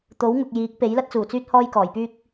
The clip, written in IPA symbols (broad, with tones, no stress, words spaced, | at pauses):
t̪o˨˥wŋʊ˨k̚jiː˨˥k̚ pe˨˥jlɐ˥t̚t͡suː˨˩t͡syː˥t̚ hɔː˥jkɔː˨˩jpyː˥k̚